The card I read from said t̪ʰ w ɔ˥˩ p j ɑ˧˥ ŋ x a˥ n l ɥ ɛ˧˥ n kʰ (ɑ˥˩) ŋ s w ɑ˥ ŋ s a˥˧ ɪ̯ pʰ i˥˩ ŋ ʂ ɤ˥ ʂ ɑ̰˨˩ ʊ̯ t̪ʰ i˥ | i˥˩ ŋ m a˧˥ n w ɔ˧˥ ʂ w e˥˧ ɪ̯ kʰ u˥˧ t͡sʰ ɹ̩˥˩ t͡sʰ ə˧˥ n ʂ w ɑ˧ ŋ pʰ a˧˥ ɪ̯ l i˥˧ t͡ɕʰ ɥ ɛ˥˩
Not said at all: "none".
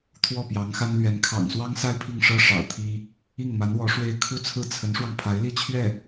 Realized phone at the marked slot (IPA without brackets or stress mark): ɑ̰˨˩